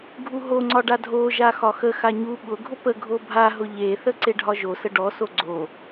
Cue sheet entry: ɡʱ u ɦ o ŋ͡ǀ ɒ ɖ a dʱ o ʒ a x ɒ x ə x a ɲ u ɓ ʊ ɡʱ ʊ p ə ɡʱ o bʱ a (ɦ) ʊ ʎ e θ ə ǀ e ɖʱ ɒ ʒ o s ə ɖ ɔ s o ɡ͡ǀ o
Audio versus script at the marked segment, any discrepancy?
no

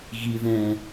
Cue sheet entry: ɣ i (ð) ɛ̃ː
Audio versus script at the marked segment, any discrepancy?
no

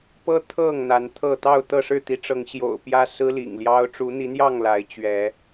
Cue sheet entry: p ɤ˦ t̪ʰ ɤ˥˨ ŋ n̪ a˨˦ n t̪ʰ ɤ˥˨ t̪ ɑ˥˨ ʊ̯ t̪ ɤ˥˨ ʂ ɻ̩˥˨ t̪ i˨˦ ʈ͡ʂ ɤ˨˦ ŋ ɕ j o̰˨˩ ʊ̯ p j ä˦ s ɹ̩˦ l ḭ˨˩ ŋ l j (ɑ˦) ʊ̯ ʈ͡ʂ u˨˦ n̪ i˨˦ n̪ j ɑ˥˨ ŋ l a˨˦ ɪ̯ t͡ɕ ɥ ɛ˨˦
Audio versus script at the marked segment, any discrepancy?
no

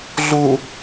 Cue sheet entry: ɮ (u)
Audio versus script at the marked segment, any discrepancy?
no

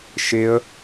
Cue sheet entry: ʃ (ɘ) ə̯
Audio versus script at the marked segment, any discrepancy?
yes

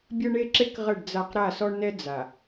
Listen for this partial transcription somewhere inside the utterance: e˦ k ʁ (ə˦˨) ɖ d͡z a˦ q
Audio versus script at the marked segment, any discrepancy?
no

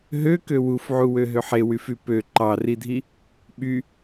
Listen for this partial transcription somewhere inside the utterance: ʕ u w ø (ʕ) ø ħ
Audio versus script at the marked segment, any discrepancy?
yes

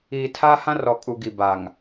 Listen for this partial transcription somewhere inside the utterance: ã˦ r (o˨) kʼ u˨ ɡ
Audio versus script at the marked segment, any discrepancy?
yes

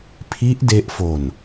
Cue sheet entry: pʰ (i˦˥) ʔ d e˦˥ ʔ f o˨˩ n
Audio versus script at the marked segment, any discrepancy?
no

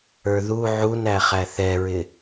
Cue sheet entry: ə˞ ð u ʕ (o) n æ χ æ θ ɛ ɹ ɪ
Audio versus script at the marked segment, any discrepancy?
yes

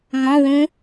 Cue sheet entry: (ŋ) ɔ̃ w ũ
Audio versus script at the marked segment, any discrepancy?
no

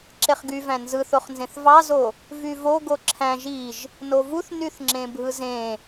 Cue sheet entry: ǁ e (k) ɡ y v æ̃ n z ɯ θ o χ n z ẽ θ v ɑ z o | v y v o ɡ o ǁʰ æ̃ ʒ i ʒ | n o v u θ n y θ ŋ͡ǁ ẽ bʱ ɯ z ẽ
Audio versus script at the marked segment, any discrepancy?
yes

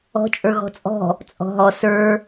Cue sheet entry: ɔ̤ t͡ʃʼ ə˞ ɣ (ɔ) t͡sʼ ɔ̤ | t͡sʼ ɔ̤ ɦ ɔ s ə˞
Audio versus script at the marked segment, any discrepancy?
yes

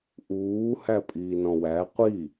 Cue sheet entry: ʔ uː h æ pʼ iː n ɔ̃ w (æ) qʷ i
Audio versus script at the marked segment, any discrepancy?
no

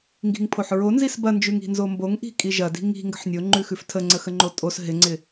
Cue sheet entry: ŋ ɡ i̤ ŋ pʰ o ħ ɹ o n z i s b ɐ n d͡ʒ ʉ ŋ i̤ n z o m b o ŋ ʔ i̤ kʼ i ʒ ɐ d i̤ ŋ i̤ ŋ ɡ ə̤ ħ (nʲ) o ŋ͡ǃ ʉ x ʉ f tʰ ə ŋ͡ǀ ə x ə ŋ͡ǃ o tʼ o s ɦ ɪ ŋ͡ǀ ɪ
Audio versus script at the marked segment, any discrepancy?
no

